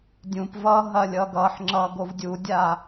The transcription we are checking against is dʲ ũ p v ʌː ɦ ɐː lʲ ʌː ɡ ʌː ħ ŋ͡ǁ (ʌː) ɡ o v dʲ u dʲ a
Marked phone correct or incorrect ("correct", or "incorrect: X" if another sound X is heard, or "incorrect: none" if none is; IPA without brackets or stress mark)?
correct